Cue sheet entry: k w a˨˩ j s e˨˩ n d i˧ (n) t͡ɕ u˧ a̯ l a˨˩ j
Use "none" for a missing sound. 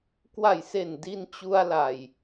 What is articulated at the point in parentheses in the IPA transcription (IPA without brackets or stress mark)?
n